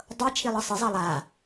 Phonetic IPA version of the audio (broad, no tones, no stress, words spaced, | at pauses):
dˤɤt͡ʃʰilˠɤ sˤɨzˤɑ lˠa